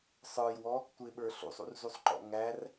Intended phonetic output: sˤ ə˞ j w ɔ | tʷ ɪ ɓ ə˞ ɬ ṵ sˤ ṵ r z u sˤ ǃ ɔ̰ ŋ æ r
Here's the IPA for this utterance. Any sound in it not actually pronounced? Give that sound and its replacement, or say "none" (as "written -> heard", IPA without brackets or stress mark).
none